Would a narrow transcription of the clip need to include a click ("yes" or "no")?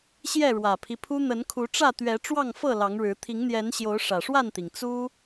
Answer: no